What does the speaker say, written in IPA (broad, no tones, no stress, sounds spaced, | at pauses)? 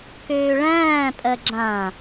k øː ɭ æ̃ː pʼ ɜ ɡ͡ǁ ã